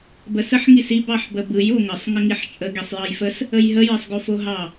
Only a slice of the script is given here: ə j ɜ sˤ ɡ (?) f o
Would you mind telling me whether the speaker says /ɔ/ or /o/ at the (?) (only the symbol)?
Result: o